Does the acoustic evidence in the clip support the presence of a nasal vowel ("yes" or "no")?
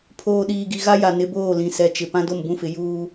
yes